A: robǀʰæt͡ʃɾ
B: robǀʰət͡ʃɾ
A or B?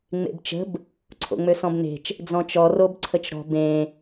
B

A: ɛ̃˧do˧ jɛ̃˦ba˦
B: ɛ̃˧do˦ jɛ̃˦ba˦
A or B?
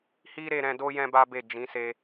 B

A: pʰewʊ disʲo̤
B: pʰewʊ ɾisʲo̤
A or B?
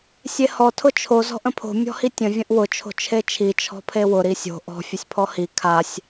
B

